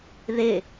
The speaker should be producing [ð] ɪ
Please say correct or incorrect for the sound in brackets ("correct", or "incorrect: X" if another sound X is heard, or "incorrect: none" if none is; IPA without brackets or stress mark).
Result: correct